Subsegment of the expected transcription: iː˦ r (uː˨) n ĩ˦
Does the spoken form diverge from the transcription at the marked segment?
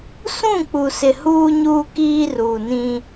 no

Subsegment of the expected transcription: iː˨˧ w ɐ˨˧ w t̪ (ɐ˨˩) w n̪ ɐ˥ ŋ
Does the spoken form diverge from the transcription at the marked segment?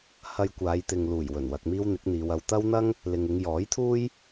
yes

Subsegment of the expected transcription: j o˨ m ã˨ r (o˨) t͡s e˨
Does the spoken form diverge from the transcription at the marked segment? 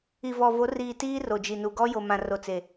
no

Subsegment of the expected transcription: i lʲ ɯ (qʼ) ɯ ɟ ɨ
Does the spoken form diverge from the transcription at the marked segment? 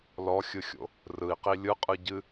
no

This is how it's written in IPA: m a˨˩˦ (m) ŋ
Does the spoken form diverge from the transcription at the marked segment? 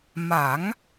yes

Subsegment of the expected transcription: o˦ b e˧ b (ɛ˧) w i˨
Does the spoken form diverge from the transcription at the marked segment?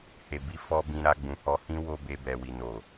yes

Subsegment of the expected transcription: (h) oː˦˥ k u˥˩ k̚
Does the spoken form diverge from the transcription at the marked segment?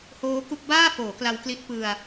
no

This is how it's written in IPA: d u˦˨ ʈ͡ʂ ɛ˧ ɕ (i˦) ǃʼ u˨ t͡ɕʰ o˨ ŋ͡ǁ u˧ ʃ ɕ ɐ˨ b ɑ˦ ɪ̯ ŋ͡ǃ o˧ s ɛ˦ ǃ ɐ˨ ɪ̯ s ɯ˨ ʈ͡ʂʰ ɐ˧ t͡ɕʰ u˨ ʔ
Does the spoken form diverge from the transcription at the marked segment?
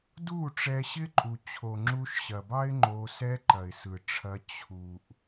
yes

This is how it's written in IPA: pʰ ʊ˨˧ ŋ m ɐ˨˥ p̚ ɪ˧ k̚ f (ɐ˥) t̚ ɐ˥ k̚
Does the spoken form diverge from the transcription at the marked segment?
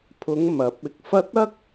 no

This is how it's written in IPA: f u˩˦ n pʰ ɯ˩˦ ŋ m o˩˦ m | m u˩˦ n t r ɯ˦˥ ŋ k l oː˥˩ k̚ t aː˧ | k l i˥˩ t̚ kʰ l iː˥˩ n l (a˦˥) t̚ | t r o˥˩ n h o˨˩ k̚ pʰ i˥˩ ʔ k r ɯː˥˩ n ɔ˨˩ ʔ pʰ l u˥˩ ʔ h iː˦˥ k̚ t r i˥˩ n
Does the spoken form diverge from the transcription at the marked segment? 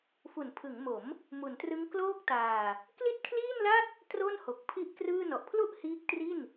yes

